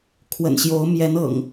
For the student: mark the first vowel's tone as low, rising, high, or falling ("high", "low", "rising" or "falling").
low